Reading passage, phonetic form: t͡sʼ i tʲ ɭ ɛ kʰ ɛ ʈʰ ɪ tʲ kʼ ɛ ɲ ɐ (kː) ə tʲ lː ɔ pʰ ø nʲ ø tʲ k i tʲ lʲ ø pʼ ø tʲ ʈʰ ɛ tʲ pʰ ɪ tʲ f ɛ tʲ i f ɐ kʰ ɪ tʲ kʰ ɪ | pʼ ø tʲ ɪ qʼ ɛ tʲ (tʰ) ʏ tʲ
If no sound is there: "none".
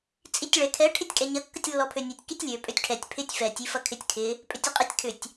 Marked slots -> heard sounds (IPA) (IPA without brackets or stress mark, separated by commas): kː, kʰ